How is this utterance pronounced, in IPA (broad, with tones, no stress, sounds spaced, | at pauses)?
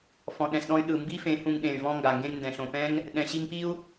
f ɔ̃˨ ɗ ɛ̃˨ s ɗ ɔ̃˧ y̯ ɗ ɯ˨ m b i˦ f ẽ˨˦ h ũ˧ ŋ ɗ ẽ˨ y̯ v ɔ̃˧ ŋ ɡ a˨ ŋ ɡ ẽ˧ ŋ n d ɛ̃˨ ɬ õ˨ p ɛ̃˦ ŋ | ɗ ɛ̃˨ ɕ i˧ ŋ p i˦ u̯